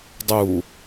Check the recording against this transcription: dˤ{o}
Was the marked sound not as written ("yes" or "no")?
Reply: yes